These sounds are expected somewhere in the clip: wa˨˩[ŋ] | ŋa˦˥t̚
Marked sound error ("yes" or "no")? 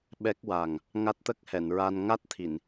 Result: no